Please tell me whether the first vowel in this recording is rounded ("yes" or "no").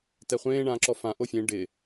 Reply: no